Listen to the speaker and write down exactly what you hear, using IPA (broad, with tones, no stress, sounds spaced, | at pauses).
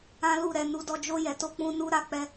ã˦ l u˦˨ ɾ ɛ˧ n u˧ d ɔ˧ d͡ʒ o˧ j ɛ˨ t o˧ k͡p ũ˧ n u˦ ɾ a˧ k͡p ɛ˧